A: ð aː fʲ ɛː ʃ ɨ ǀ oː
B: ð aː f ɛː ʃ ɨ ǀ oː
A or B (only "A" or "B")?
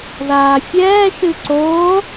A